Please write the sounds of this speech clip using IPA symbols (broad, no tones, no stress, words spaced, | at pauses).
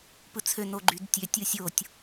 pɯt͡sʰø noɡ͡ǃydtʲø tʲɯsʲotʲ